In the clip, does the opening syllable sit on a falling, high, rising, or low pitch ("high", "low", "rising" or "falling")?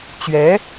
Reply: rising